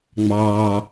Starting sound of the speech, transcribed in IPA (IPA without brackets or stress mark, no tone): ŋ͡m